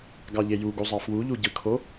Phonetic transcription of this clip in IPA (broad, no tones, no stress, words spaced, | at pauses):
ɡɑʎejuɡu zˤɑfwuʎu ɟɯkʰo